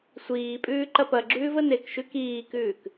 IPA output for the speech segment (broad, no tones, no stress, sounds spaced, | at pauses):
sʷ iː pʼ ʉː ǃ ɐ p ɐ ɡ͡ǁ ʉː v ə n e k ʃ ʉ k iː k ʉː k